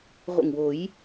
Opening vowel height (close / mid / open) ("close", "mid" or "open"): mid